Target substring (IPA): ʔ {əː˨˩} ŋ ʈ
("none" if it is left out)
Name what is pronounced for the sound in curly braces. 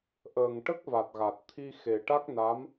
əː˨˩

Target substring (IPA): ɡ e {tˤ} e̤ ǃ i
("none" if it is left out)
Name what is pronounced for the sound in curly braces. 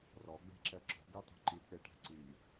tˤ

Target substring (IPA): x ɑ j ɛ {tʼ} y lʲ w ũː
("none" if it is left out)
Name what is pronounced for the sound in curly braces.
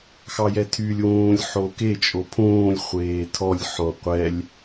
tʰ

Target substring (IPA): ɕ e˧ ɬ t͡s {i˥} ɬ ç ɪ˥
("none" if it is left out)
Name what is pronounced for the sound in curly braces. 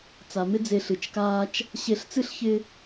ɨ˥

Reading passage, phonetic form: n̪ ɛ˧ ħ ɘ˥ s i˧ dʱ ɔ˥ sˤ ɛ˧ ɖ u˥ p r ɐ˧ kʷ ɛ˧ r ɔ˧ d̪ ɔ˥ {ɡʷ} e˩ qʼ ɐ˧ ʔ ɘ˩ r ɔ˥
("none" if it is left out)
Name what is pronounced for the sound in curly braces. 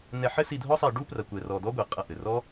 ɡʷ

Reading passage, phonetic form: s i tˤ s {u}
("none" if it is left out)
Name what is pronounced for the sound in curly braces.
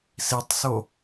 o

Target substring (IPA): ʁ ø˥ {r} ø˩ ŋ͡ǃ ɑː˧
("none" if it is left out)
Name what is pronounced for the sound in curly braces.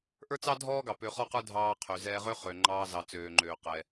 χ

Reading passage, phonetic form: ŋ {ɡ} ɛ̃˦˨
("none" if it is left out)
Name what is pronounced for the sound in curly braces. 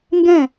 ɡ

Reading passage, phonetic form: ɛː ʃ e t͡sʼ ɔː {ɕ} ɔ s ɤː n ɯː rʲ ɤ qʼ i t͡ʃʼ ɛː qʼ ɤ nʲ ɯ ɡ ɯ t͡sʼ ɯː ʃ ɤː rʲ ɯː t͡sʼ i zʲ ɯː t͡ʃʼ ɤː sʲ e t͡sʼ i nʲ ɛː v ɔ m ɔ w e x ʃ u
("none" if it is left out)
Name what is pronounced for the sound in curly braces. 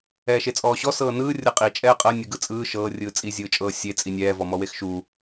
ɕ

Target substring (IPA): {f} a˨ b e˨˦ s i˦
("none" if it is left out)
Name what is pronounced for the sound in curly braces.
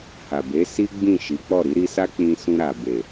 h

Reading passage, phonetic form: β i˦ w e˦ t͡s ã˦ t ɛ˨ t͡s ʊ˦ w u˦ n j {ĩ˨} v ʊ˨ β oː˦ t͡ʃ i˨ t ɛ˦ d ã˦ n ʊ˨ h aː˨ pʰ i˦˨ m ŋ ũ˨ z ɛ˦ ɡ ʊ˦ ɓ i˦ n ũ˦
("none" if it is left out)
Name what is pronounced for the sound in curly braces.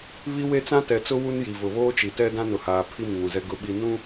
i˨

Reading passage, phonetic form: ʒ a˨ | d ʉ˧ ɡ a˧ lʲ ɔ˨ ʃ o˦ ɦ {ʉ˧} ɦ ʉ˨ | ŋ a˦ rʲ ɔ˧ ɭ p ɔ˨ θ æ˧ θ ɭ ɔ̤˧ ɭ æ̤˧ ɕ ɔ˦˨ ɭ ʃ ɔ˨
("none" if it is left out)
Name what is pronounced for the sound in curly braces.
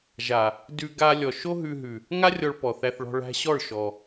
ʉ˧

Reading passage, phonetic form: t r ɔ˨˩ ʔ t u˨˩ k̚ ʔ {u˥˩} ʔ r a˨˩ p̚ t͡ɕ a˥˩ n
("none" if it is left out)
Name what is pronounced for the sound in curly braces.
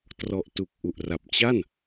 u˨˩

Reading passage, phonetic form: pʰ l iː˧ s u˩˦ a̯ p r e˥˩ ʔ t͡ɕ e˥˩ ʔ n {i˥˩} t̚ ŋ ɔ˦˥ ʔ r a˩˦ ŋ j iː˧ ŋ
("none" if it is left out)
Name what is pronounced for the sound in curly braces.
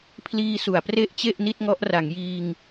i˥˩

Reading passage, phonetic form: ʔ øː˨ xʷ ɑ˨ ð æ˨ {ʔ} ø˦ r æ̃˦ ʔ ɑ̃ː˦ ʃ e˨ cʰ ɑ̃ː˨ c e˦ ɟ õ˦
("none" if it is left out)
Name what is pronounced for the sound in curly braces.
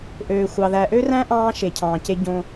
ʔ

